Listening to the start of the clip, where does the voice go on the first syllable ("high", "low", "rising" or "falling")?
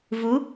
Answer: rising